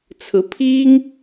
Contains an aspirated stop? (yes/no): yes